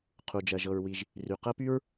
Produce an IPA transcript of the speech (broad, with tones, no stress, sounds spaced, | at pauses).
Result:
qʰ u˩ d͡ʒ ɜ˩ ʒ ɤ˩ ɹ w i˩ ʒ | r y˩ q ɜ˥ p y˥ ɹ